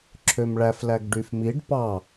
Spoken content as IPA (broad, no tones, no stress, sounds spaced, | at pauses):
ǁʰ ø m ɭ æ f l æ ɡ ɖ y f m i ɖ p ɑ